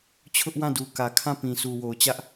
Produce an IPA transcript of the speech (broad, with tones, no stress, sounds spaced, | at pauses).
t͡ɕʰ ʊ˦ ʔ w ã˦˨ d u˨ k ä˨ kʰ ã˦˨ p ĩ˨ s u˨ w o˨ ʊ̯ t͡ɕ ä˦ ʔ